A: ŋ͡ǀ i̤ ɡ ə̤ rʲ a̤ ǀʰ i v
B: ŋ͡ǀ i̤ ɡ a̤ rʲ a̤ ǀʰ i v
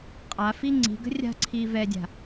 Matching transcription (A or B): A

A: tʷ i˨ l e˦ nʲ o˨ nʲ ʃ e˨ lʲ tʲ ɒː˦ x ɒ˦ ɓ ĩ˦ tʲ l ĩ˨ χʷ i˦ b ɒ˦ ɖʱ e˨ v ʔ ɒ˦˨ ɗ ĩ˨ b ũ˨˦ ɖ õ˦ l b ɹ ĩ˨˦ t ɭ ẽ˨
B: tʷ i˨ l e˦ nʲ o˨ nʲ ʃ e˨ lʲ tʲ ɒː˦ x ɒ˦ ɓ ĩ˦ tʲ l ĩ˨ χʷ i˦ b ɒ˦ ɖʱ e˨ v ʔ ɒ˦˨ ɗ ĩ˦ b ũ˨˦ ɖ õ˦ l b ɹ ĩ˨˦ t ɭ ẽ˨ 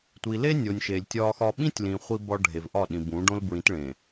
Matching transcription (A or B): A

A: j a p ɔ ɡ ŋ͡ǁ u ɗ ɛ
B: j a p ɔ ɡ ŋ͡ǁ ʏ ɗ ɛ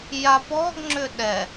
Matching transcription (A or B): B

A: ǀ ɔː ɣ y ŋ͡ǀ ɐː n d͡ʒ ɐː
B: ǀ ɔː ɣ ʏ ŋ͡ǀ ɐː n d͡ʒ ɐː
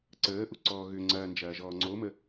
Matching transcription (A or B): B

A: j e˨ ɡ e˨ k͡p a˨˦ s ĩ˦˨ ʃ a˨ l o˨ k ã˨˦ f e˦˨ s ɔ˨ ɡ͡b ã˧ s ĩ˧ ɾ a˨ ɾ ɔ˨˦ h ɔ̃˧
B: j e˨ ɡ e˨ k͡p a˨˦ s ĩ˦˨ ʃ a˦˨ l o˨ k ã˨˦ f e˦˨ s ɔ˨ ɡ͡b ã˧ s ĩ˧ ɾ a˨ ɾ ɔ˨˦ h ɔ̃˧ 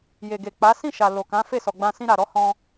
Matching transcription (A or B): A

